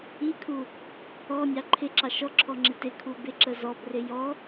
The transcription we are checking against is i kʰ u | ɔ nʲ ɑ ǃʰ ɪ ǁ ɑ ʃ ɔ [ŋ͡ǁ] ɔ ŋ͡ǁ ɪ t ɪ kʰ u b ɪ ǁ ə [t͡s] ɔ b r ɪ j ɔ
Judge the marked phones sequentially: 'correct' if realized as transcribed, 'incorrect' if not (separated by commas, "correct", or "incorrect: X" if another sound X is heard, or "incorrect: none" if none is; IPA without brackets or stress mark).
incorrect: ǁʰ, incorrect: z